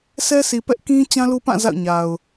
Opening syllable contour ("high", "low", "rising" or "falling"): high